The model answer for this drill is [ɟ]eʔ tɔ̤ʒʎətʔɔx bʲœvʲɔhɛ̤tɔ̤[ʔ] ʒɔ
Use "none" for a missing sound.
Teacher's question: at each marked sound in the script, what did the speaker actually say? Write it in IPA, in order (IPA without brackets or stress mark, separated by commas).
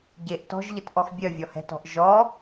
ɟ, ʔ